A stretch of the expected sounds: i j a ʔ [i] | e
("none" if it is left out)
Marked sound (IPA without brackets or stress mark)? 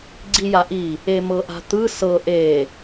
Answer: i